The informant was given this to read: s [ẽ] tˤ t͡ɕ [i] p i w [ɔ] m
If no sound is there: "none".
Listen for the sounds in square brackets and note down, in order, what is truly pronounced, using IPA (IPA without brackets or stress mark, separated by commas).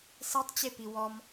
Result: e, e, ɔ